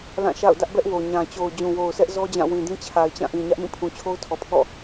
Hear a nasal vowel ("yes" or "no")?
yes